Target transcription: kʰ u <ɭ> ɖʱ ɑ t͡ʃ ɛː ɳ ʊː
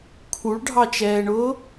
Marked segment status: correct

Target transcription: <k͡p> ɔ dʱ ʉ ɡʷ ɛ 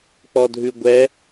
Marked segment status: correct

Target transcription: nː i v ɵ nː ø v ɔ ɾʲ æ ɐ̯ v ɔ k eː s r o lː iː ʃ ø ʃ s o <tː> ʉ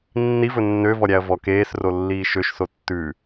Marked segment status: correct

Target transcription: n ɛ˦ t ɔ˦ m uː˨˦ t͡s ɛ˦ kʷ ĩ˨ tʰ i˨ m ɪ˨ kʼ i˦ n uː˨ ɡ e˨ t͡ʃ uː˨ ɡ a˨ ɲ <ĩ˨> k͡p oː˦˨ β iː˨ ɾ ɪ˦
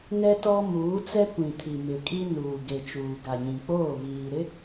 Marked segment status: correct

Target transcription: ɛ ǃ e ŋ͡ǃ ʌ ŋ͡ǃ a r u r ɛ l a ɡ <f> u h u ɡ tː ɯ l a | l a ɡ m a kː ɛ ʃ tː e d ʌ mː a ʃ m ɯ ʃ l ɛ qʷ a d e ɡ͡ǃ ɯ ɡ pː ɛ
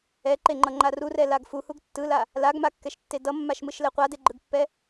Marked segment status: correct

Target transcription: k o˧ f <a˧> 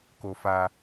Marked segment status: correct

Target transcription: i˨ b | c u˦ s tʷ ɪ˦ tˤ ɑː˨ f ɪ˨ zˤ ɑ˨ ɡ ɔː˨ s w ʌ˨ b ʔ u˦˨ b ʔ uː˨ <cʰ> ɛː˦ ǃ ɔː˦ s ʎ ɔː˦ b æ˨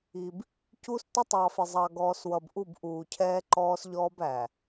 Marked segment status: correct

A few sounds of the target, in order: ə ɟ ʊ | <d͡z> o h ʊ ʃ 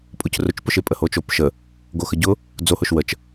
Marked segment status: correct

